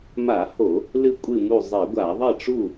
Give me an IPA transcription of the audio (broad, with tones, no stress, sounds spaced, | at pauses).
m a˧˩˧ h o˧˩˧ | l ɨ˥˨ kʷʼ ɨ˥˨ m u˥˨ zˤ i˧˩˧ ɡʷ a˧˩˧ ðˤ ɐ˥˨ ʈ͡ʂ u˥˨